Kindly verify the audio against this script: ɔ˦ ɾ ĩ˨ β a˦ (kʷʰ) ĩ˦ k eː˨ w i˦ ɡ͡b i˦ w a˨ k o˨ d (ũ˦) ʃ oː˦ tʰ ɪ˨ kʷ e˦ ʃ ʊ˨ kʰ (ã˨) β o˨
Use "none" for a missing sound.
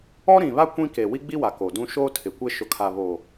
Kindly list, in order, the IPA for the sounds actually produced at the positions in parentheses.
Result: kʷ, ũ˦, a˨

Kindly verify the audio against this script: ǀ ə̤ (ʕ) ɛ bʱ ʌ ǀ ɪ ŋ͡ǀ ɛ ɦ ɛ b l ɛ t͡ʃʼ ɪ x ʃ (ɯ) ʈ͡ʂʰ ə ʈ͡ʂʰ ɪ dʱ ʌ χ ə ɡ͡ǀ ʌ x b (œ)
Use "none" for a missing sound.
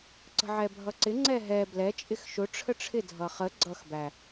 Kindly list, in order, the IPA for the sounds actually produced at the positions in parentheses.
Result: ʕ, ʊ, æ

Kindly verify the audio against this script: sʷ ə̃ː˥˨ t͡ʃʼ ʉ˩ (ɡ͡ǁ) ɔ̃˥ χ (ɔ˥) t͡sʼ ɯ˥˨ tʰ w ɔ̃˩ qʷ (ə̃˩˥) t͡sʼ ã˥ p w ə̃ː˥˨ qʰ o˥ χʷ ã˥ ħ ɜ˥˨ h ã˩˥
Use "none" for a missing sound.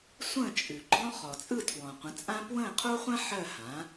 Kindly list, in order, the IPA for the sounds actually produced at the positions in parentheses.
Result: ɡ͡ǃ, ɔ˩, ə̃˩˥

